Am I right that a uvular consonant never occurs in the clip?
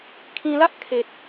yes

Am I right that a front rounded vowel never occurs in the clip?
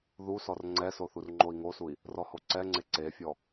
yes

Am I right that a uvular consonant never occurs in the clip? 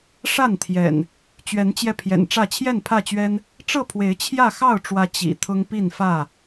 yes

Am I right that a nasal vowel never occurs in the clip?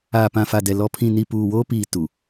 no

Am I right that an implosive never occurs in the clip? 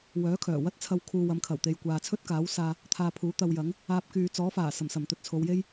yes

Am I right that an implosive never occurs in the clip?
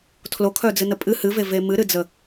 yes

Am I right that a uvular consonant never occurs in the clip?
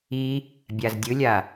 yes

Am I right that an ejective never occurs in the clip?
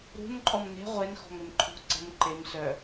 no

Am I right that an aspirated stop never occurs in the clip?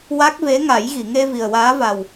yes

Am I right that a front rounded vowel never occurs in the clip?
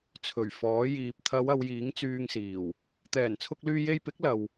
no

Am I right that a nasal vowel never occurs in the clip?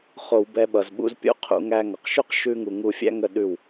yes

